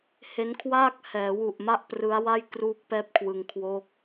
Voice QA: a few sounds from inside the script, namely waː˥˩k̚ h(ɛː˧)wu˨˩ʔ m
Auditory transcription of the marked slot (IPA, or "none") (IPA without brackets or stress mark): ɛː˩˦